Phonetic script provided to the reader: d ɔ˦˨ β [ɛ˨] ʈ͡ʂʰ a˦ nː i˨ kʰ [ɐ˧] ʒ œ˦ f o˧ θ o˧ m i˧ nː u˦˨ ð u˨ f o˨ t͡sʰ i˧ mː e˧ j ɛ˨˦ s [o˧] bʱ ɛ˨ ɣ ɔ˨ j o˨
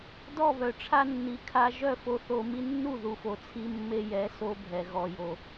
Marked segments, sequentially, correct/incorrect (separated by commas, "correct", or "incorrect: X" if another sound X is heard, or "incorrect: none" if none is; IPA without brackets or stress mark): incorrect: œ˨, incorrect: a˧, correct